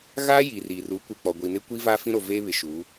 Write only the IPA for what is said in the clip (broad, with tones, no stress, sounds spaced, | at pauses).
ɣ aː˦ j i˨ r i˨ r u˨˦ kʷ ɪ˨ k͡p ɔ˨ ɡʷ i˨ n ɪ˦ kʷ i˦ v a˦ f ĩ˦ ɾ o˨ v eː˦ β ɪ˨ ʃ u˨˦